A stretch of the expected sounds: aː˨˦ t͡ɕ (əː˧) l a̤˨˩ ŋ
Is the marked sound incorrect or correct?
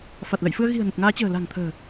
incorrect: ə̤ː˨˩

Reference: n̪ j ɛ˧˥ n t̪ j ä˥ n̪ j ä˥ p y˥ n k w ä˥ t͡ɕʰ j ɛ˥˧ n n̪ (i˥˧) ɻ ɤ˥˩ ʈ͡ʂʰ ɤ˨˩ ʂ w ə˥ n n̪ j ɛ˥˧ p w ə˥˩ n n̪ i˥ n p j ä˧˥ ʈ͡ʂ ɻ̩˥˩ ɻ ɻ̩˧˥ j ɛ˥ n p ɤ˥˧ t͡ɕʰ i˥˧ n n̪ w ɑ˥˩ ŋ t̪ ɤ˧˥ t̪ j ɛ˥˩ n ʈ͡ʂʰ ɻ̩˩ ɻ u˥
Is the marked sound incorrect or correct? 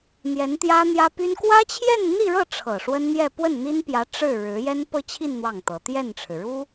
correct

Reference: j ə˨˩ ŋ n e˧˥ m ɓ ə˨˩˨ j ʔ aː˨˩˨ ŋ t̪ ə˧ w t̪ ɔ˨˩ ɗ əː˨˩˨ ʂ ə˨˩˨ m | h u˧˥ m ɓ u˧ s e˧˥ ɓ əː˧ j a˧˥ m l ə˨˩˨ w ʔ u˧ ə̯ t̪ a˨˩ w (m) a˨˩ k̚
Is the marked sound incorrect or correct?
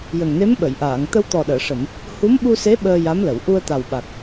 incorrect: ɓ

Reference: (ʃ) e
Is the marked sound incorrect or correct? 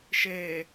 correct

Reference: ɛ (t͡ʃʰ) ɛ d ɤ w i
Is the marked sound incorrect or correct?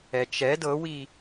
incorrect: t͡ʃ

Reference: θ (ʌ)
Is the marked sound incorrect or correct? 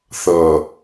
correct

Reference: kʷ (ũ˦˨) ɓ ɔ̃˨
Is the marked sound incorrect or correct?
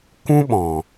incorrect: ũ˦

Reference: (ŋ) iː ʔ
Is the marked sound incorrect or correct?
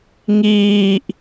correct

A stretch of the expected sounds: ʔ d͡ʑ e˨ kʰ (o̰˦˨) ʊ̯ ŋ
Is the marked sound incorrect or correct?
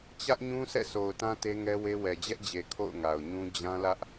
correct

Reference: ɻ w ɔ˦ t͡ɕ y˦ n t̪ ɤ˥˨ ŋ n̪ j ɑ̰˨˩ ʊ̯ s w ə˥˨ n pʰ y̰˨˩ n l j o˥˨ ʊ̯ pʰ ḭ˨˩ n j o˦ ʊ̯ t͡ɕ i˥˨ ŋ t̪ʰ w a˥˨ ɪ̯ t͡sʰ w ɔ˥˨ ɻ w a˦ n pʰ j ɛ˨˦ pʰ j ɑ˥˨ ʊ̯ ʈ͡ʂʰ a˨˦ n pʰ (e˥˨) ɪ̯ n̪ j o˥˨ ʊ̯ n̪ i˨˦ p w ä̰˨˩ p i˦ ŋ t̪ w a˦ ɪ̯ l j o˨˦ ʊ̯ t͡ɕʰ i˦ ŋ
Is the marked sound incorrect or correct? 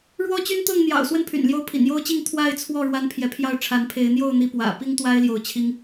incorrect: e˨˦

